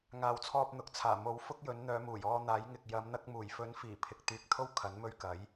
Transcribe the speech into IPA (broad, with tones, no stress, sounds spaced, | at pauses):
ŋ aː˨ w t͡sʰ ɔː˧ p̚ n̪ ʊ˨ k̚ t͡sʰ aː˨˩ m o˨˥ w f ʊ˥ k̚ j ɵ˨˥ n n̪ œː˨˧ m uː˨˩ j ɔː˧ n̪ aː˨˥ j ŋ ɪ˨ k̚ j ɐ˨˧ m n̪ ɐ˧ k̚ m uː˨˩ j f ɵ˨˥ n f iː˨˩ pʰ ɪ˨ k̚ t̪ yː˨ k̚ t̪ʰ o˥ w kʰ ɐ˨˥ n m ɵ˧ ɥ k ɐ˨˥ j